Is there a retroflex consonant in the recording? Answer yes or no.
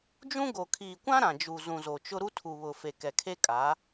no